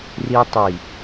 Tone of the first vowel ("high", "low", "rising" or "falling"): high